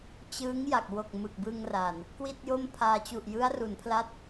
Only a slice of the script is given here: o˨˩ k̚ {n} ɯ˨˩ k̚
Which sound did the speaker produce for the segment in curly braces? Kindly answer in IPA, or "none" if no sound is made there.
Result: m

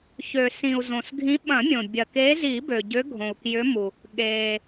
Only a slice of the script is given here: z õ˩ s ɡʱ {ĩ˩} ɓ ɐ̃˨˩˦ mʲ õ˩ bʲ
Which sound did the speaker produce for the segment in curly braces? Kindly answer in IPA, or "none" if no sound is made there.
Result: ĩ˨˦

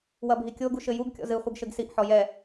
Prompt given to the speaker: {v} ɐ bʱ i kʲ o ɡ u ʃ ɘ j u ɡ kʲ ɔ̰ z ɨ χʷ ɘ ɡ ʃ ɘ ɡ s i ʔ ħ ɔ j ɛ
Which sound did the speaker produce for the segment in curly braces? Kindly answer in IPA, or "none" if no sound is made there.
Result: w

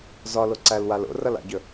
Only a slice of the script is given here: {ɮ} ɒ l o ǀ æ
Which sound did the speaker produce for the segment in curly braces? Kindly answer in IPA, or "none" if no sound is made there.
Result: z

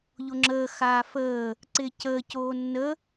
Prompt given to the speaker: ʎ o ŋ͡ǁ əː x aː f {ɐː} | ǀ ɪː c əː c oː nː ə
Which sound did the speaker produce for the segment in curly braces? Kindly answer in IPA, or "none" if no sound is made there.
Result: əː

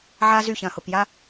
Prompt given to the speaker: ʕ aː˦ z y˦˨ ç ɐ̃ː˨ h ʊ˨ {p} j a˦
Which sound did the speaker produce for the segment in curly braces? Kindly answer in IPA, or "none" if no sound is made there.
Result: p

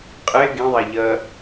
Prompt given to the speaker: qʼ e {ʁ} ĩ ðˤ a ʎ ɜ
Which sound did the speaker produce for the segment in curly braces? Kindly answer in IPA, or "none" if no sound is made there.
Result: ɡ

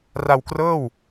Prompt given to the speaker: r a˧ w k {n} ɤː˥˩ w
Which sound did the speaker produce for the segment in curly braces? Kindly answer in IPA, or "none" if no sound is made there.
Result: r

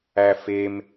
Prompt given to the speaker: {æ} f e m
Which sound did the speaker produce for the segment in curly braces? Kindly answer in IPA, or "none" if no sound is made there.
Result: æ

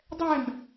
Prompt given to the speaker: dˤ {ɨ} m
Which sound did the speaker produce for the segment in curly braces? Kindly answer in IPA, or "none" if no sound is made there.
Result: ɛ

